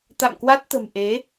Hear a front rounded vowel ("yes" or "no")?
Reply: no